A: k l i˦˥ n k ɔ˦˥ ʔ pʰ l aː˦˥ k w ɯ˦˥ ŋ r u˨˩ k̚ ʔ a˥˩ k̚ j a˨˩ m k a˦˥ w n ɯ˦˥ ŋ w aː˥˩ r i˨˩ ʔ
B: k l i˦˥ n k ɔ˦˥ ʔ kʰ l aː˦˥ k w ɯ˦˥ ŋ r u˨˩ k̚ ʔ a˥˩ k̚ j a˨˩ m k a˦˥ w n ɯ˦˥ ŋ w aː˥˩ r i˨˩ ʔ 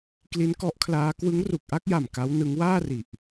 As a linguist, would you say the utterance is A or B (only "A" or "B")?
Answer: B